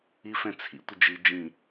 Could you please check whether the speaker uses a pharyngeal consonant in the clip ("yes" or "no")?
no